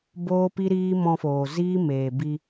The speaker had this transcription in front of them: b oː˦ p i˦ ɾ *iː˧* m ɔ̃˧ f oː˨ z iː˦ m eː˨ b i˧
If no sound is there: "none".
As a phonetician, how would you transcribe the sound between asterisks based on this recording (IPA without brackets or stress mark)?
iː˦